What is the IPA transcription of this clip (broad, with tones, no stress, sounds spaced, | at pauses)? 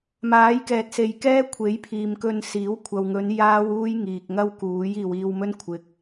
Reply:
m aː˨˥ j k ɛː˨ t̚ s e˨ j k ɛː˥ kʷʰ e˨˥ j pʰ iː˨ m k ɵ˧ n s iː˨˥ w kʷʰ ɐ˨ w ŋ ɵ˨˧ n j aː˥ w uː˥ j ŋ iː˨ k̚ ŋ ɐ˥ w k uː˨˥ j iː˨ w iː˧ w m ɵ˥ n kʷʰ ɪ˨ k̚